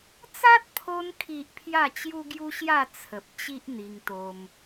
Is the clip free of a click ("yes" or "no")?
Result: yes